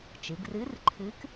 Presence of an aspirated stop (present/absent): present